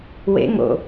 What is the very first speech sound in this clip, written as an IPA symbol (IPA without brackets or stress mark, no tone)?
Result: w